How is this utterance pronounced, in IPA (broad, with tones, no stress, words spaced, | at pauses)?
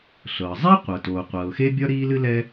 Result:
ɬɤ˩zˤɛ˥qʷɤ˩ toː˩qʷɤː˩xe˥bʲɒ˥ ɾiː˥lɨ˥lɛ˥